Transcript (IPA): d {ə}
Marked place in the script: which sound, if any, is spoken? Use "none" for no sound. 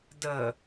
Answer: ə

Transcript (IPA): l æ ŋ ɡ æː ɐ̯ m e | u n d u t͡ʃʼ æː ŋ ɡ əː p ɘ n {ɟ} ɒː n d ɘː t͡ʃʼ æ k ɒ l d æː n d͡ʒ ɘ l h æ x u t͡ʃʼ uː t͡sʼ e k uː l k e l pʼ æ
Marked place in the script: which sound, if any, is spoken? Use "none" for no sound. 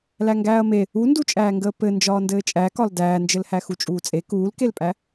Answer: d͡ʒ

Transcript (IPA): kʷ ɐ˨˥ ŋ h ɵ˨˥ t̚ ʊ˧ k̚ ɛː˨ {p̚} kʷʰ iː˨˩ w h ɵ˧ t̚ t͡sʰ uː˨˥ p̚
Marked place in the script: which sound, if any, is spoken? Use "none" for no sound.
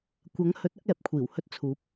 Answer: p̚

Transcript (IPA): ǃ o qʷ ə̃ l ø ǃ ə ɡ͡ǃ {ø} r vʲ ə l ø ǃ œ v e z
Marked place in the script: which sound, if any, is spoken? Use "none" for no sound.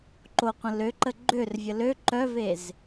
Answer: ø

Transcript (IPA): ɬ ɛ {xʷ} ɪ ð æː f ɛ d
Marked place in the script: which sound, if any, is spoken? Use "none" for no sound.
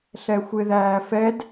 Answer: xʷ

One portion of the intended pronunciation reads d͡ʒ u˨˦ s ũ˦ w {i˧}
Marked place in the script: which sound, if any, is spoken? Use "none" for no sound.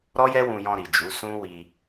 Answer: i˧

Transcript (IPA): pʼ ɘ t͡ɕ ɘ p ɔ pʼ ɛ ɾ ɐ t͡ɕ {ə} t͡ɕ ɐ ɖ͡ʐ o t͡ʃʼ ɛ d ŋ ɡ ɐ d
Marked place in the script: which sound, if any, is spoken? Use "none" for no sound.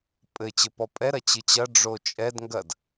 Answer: ɨ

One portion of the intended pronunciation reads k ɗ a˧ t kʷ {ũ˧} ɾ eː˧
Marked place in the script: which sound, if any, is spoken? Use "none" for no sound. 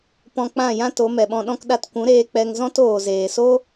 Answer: ũ˨˦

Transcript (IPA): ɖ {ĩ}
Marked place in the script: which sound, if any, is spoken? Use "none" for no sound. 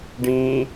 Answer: ĩ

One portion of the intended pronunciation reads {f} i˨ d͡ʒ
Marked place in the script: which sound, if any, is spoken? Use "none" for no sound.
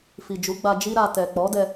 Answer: f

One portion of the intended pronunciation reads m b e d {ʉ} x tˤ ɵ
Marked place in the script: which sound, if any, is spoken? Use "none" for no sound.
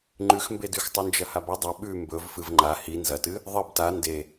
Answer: ʉ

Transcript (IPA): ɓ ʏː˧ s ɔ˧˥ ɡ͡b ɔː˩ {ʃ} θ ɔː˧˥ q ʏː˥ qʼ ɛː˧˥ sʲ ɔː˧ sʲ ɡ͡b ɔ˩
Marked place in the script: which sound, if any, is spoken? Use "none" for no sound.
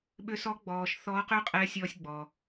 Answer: ʃ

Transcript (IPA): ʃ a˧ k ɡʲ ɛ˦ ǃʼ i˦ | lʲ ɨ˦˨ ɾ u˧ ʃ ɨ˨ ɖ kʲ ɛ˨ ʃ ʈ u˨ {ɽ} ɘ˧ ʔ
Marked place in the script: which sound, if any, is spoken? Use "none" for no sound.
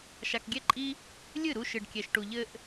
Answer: ʎ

